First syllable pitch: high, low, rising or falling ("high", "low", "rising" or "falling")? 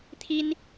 high